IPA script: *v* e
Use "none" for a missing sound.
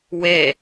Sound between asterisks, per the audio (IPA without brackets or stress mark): w